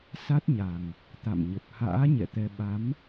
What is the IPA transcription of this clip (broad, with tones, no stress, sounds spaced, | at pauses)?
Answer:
s a˦˥ t̚ ɲ a˨˩ ŋ | t̪ a̰˧˨ m ɲ ə˨˩ p̚ h a̰ː˧˥ ɲ ɛ̰˧˨ t̪ ɛ˧ ɓ a˨˦ m